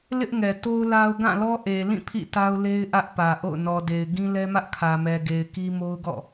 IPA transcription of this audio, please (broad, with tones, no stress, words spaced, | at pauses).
lɪ˦ʔŋɛ˨to˦ʊ̯ la˦ʊ̯ ɡã˦˨lɔ˦ ʔe˨lĩ˦˨ pʰḭ˦˨ta˦ʊ̯le˦ɪ̯ ʔä˦ʔpä˨ʔo̰˦˨ʊ̯ nɔ˨ de˨ɪ̯ ɡĩ˦lɛ˦mä˦ʔkʰä˨ mɛ˨ɡe˨ɪ̯ ki˦mo˦ʊ̯ɡɔ̰˦˨